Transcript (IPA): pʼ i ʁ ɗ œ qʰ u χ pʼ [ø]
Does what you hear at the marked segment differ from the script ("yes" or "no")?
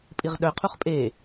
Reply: yes